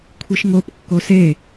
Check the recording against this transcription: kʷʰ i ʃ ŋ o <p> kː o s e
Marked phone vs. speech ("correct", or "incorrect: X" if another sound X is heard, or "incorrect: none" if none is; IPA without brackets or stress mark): correct